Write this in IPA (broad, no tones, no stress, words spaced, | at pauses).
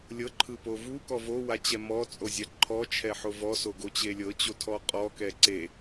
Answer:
lʲɤǃʰɯpo vukɔ vowat͡ɕɛ mɔt͡sʼozʲa ǃʰɔt͡ʃʰɛħo vɔsoɡot͡ɕe lʲɤt͡ɕotʰɔ qʼɔkɛ ǀe